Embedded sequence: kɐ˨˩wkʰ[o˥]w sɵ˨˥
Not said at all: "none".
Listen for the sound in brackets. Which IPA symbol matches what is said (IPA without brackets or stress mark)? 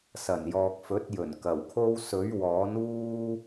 o˥